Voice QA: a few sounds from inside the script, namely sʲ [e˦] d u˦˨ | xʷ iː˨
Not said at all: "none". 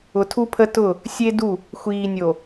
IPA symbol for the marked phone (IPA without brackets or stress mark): e˦